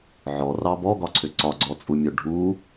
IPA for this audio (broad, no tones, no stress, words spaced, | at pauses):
ʕɔrɑ bɔɡɒǀʰʏ ǀɒɡ͡ǀɔt͡sʼumʲœ ɖʱu